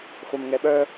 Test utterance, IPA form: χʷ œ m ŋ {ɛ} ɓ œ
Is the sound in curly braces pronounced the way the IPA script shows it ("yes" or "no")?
yes